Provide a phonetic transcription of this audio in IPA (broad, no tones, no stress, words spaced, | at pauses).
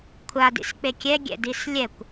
kʷʰadḭsk͡pe kʲɛɡʲɛ̰dis lʲɛkʷ